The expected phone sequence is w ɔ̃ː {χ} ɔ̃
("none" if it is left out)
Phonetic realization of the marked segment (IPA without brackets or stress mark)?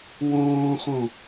χ